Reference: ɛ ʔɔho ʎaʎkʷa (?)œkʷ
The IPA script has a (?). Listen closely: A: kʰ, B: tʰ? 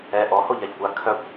A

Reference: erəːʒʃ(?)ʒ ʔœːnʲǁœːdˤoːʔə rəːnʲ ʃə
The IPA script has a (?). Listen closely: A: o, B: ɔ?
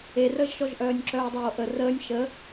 B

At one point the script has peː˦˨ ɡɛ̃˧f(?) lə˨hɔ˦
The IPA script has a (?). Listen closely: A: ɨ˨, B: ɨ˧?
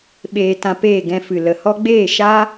A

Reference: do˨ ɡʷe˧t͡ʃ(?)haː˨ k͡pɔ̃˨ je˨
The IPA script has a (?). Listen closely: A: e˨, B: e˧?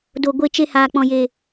B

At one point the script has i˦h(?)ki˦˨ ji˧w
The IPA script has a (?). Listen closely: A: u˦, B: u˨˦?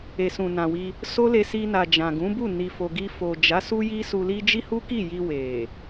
A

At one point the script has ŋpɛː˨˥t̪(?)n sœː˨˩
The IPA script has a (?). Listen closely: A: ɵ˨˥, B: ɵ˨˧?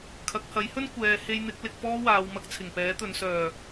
B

